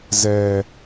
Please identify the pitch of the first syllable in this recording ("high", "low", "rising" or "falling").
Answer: low